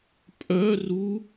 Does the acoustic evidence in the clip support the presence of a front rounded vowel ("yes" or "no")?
yes